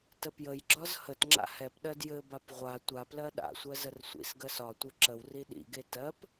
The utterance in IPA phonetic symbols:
t ə p j ə j ɡ͡ǁ ɒ z h ə t ŋ͡ǁ a̰ h ɛ p ɗ ɜ d j ɘ b a p ʁʷ a tʷ a p l ɜ ɗ a̰ sʷ ɜ z ə r sʷ ḭ s ɡ ɜ s ɒ tʷ ɘ ǁ ə w r i ɗ ḭ ɡ e t ɜ p

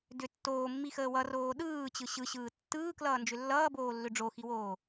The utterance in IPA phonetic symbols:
d ʏ tː oː mː i x əː w ʌ r oː ɗ ɯː t͡ɕ ɯ ɕ ɯ ɕ ɯː tː ɯː k l ʌː n d͡ʒ ʏ lː ʌː b oː lː ʏ ɖ͡ʐ o x i w oː

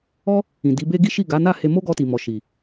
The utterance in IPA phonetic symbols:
ɔ˦ | ĩ˨ d i˨˦ b e˦ ɡ i˦ ʃ i˦˨ ɡ a˨˦ n a˦˨ h e˧ m o˦ ɡ ɔ˧ t i˨ m ɔ˨ ʃ i˨

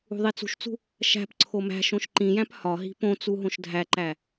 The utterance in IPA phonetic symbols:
ṳ ðˤ i t͡s ṳ ʃ t͡s ṳ | ʃ æ̤ p ǀʰ o m æ̤ ʃ õ ʃ ǃ ĩ j æ̃ p h ɒ ɦ i̤ p õ t͡s u ɦ õ ʃ dʱ æ ǃ æ

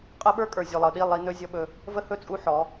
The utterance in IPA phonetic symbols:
qʼ ə˦ ɓ ə˞˦ kʼ ə˞˨ zʲ o˨ lˠ ɤ˨ ɗ i˦˨ lˠ i˦ n ɵ˦ zʲ ɔ˦ ɓ ɵ˦ | v ə˦ h ɵ˦˨ t͡sʼ u˦ ħ ɔ˨˦

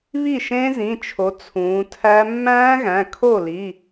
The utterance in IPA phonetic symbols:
β i˥˩ ʃ ẽ˦˥ z ĩ˩˧˩ t͡ʃʰ o˩˧ t͡sʰ ũː˩˧ tʰ æ˦˥ mː æ̃ː˦˥ ɣ æ̃˩˧˩ kʰ o˥˩ l i˩˧˩

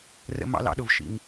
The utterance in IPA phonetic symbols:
r ə̰˧ m ɑ̰˧ l ɑ̰˧ ɗ ʊ˨ v ʃ ḭ˨ ŋ

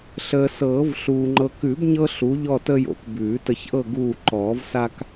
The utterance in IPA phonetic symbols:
ɬ əː˨ s ɤː˨˩˦ v ɬ uː˨ ŋ͡ǃ ɤ˨ k ʉ˨˩˦ b ɲ ɤ˦ ɬ u˨˥ ʎ ɔ˦˨ t ə˦ j o̰˨ k b ʉː˨˩˦ t ə˨ ç ʔ ɤ˦˨ ɡ uː˦˨ ǃ ɔː˨˩˦ v s a˦ k

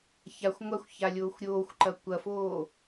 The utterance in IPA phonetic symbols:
ç a xʷ ŋʷ a xʷ ç a lʲ oː xʷ ɾʲ oː xʷ ǃ ɐ kʷ ɐ f oː

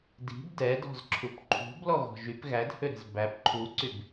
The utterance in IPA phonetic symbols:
d i̤ b d ɛ d ɔ̤ z ǁʰ u p ǃʰ ṳ b l ɔ ɣ ɔ̤ ʒ y p ɣ æ d h ø ɾ ɛ̤ z b æ p ǃʰ u ǀ y b

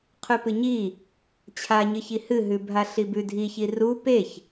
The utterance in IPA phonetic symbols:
qʰ ʉ p ɨ ɲ i | t͡ɕʰ a ɲ ɨ ç i h ɨ ɦ ʉ bʱ a ɬ i b ʉ dʱ i ç i r u p e ç

